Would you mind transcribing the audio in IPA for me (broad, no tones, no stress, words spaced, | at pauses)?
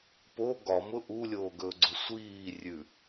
po ɡɒmʊ ʔulʲoːɡɵːɡ͡ǀʊ sʷiː rʲʉ